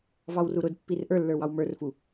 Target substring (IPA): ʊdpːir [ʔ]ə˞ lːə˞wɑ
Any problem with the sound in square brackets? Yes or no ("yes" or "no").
no